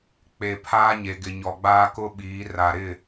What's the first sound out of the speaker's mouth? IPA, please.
k͡p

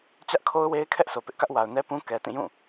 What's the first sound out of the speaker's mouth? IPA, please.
t͡ɕ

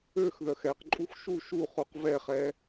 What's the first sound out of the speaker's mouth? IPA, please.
ø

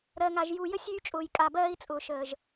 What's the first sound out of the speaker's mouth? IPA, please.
ɾ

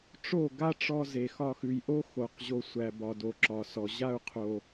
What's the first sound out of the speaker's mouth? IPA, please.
ʈ͡ʂ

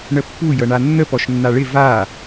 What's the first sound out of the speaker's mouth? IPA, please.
ɳ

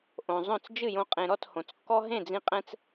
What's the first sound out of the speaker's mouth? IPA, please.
ʔ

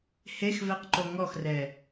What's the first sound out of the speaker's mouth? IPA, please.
h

